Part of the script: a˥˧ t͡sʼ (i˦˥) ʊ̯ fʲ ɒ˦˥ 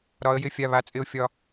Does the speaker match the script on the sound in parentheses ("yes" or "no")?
no